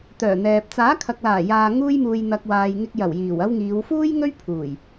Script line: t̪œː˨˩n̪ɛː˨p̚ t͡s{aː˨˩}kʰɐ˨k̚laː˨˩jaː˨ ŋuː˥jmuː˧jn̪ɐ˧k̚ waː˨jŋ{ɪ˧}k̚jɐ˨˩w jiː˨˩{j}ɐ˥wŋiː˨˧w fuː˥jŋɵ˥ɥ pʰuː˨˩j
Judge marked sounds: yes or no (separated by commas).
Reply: no, yes, no